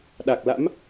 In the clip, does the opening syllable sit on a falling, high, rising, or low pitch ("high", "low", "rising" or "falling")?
low